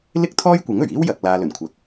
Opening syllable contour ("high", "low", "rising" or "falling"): high